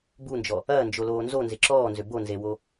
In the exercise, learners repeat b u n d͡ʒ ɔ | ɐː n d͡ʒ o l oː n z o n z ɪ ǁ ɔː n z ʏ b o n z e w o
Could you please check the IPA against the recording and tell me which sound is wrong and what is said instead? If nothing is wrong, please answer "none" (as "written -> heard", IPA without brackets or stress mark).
none